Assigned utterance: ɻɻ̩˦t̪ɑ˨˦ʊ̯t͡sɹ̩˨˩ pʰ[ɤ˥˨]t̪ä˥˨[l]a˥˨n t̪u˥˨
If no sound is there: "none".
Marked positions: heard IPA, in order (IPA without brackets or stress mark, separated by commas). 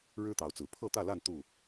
ɤ˥˨, l